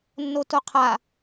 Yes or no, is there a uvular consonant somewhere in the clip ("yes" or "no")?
yes